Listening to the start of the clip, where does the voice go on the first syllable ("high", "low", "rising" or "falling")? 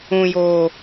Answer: low